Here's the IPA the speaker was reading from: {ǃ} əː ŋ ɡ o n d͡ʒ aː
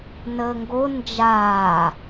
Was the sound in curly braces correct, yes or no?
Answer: no